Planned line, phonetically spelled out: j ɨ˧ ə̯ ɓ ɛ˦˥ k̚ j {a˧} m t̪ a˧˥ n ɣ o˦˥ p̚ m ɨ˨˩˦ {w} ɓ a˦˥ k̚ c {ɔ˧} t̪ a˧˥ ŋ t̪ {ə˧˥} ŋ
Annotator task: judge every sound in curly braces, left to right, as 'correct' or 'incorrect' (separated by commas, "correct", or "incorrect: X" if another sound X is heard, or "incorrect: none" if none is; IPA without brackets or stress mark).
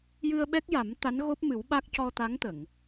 incorrect: a˨˩˦, correct, correct, incorrect: ə˨˩˨